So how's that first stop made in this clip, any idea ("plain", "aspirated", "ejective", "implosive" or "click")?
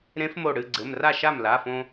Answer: click